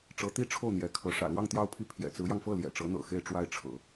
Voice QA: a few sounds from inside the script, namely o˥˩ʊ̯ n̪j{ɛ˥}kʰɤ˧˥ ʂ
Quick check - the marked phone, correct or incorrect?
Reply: incorrect